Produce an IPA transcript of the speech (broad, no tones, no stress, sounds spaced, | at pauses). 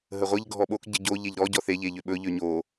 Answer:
ɦ ə ʁʷ ə ʎ ɡʱ ɔ ɓ o k ɟ ə ɟ o ʎ e ʎ ɾ ɔ ɟ ɔ θ e ʎ e ʎ ø ɓ ɵ ʎ ø ɲ o